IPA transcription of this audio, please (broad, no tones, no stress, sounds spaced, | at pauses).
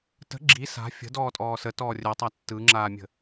t ə̤ ɡ͡ǁ i s a̤ fʲ ə̤ d ɔː tʼ ɔː s ə t ɔː rʲ œ tˤ a tː ɯ ŋ͡ǁ aː mʲ ə̤